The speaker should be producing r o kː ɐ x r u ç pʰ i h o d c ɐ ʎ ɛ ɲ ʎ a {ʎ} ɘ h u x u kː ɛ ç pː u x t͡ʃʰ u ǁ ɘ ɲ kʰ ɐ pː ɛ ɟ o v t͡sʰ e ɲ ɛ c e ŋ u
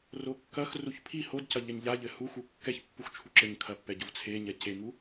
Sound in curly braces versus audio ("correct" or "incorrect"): correct